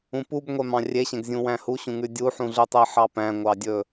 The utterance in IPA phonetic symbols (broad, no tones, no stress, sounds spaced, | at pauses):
ũ p u b ŋʷ ɛ m ɑ̃ rʲ e ɕ ɛ̃ ɡ zʲ ũ w æ̃ h u ɕ ũ ŋ ʉ dʲ u ħ ũ ɮ ʉ tˤ e ħ ɑ p æ̃ ŋʷ ɑ dʲ ɵ